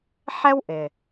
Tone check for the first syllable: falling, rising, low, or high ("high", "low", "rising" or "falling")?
high